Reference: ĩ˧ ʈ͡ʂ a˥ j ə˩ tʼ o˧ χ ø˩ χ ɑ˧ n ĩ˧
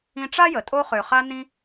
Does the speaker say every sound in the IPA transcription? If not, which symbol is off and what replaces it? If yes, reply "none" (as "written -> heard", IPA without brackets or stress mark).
ɑ˧ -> a˧